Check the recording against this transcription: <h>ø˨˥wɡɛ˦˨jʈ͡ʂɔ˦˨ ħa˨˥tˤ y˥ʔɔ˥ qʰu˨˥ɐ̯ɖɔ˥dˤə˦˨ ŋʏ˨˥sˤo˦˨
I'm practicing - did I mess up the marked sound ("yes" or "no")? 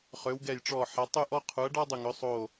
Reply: yes